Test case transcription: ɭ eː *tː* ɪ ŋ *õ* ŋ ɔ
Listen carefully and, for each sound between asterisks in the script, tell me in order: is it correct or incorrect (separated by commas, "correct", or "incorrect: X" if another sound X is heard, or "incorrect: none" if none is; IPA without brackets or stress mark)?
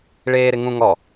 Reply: incorrect: ɾ, incorrect: ũ